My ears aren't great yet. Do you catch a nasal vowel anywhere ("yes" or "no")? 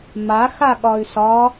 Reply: no